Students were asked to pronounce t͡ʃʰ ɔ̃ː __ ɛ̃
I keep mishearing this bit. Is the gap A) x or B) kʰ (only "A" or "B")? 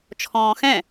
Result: A